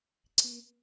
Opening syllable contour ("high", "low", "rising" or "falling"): high